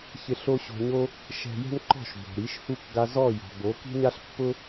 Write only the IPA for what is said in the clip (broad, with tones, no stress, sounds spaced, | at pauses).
ç ɪ˧ ɬ o˥ ɕ o̤˧ ɲ o˥ | ʃ ɛ̤˧ j ɛ̤˥ n ǃ ɔ̤˥˩ ʃ b o̤˩ ɾ i˩˥ ʃ h u˥˩ k ɡ a˧ z ɔ˥˩ j ɔ̤˩ b o˩˥ k i̤˥ ɲ a˥ ɬ pː ʊ˥